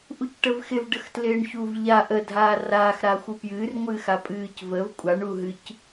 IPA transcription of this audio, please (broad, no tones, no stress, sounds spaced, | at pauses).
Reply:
ʔ u c ʈ ə v x ɪ v ɖ ə x t l ɪː ɳ ç u v ʎ a ʔ ə dʱ aː r aː x ɾ aː xʷ u p j ɨː r ŋʷ ɨː x a pʼ ɨː c v ə v kʷʼ a ɳ u ɦ ɨ c